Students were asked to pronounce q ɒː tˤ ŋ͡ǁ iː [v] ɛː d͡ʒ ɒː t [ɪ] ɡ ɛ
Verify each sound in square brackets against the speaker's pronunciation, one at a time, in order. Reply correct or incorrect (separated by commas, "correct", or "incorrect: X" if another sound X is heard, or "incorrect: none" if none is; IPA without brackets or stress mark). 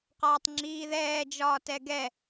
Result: incorrect: ð, incorrect: ɛ